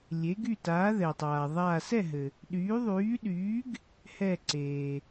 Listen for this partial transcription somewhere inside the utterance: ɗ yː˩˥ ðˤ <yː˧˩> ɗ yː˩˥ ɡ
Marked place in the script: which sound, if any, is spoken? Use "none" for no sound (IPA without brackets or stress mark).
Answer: yː˩˥